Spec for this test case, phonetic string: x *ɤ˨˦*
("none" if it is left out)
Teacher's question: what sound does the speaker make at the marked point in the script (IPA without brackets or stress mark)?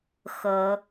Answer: ɤ˨˦